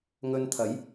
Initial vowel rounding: rounded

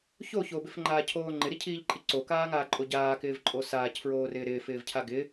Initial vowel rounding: rounded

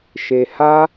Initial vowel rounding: unrounded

